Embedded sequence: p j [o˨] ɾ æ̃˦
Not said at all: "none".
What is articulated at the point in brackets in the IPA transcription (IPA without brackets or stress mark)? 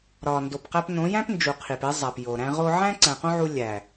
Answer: o˨